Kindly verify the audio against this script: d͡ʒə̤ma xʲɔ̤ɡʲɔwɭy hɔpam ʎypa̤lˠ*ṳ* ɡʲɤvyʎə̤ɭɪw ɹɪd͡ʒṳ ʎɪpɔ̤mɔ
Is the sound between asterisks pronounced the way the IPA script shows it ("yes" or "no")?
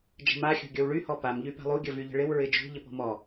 no